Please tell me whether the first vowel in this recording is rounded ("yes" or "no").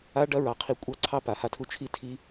no